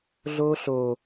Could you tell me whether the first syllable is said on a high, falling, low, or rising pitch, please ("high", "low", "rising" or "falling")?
high